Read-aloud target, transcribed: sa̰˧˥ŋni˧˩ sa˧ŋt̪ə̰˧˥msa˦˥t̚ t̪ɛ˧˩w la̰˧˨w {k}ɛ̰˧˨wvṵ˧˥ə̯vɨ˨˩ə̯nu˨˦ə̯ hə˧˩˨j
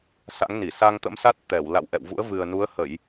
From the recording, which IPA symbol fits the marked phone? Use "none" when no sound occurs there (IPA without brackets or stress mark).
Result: ʔ